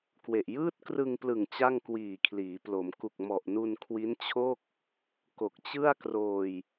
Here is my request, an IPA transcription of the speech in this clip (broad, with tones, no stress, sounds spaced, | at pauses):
k w e˨˩ ʔ j ɯː˥˩ t̚ k r ɯ˧ ŋ p l ɯ˨˩ ŋ t͡ɕ a˥˩ ŋ k w iː˨˩ kʰ l iː˩˦ p l o˩˦ m k u˨˩ k̚ m ɔ˨˩ ʔ n u˧ n kʰ w i˦˥ n t͡ɕʰ o˥˩ k̚ | k o˨˩ k̚ t͡ɕ ɯ˥˩ a̯ k r oː˧ j